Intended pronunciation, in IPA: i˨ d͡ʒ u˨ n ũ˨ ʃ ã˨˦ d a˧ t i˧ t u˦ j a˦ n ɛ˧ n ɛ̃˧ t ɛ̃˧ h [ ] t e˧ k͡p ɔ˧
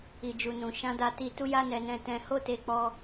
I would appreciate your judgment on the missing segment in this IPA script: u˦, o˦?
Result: o˦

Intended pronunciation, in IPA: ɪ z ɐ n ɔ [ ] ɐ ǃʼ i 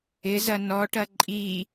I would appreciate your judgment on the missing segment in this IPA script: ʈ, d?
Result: ʈ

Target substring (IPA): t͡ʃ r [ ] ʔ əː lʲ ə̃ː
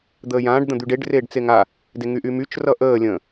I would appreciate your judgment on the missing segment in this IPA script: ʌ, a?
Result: ʌ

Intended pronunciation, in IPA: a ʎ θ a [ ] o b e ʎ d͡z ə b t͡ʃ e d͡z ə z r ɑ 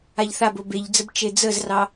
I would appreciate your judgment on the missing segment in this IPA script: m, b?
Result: b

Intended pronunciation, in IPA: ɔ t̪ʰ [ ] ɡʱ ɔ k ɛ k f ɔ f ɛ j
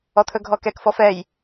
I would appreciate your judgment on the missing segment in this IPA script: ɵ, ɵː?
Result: ɵ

